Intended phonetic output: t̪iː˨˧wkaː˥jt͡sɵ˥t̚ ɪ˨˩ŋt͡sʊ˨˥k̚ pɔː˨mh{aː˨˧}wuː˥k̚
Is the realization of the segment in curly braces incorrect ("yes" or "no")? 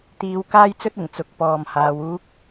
no